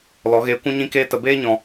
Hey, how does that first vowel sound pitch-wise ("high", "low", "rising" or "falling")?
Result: rising